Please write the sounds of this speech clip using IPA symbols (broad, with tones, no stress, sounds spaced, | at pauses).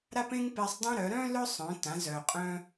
ɾ a˥ p ẽ˥ ŋ p e˧ sˤ dˤ ẽ˥ ɾ œ˩˧ ɾ œ̃˥ l œ˥ sˤ œ̃˩˧ t ã˩˧ z œ˩ qʼ œ̃˧